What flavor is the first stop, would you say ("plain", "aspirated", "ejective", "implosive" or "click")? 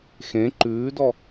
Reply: click